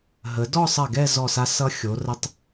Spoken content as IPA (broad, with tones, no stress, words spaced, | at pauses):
ɦə˩˧dɔ˥˧sˤɜ˧˩ ɡɛ˥˧zɔ˧˩sa˧ sʌ˧xʲo˩˧ rə˧tˤ